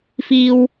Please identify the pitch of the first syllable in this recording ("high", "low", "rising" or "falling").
high